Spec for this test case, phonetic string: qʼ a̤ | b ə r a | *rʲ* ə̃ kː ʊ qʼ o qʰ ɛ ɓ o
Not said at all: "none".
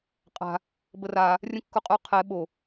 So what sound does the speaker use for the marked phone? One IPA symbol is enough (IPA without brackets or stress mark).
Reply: rʲ